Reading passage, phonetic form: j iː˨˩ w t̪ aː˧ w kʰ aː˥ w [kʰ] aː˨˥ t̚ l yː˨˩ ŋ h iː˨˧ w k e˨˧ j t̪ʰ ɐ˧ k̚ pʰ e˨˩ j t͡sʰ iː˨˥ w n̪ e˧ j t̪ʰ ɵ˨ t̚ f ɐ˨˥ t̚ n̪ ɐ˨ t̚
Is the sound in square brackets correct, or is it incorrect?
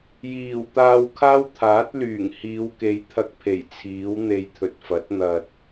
incorrect